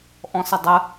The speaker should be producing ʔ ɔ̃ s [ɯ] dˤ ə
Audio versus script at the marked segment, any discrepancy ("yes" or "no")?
yes